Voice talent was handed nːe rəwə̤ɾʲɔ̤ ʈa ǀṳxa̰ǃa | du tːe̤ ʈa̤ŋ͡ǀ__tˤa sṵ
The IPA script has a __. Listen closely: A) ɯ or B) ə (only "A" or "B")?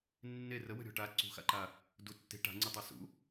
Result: A